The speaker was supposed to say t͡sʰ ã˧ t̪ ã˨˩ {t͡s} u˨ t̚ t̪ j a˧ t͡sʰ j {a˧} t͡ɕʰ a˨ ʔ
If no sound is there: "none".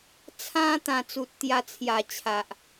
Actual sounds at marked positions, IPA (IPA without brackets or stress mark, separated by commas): t͡s, a˨˩